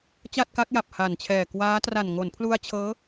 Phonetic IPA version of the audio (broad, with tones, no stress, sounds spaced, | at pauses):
t͡ɕ a˥˩ t̚ k a˦˥ k̚ j a˨˩ p̚ h a˨˩ n t͡ɕʰ ɛː˨˩ k w aː˦˥ t r a˨˩ n ŋ o˩˦ n pʰ l u˧ a̯ t͡ɕʰ ɤː˦˥